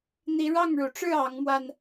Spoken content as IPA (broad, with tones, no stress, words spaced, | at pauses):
n̪i˨˦ɻɑ˥˨ŋɻu˩ʈ͡ʂɻ̩˥˨ ɑ˨˦ŋmwa˧n